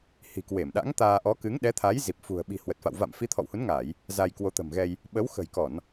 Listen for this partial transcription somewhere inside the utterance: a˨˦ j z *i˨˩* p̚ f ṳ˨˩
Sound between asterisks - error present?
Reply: no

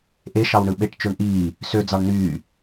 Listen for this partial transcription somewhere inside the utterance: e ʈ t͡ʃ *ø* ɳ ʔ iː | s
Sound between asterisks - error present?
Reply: no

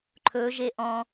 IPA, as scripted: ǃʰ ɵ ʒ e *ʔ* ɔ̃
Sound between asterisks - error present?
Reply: no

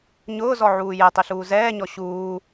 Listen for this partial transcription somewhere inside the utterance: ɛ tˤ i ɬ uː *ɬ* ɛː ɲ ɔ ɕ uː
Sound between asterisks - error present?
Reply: yes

